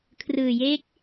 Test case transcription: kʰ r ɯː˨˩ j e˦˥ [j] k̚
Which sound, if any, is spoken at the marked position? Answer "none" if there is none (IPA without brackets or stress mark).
none